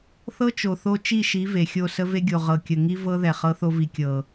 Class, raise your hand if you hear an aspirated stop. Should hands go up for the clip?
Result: no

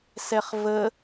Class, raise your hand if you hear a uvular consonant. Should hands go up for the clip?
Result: yes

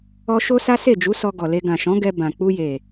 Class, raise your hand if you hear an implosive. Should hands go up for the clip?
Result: no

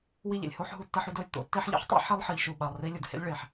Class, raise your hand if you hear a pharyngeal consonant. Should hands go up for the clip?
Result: yes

